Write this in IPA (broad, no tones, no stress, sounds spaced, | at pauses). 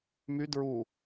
m y d ɹ u